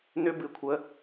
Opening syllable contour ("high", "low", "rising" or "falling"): high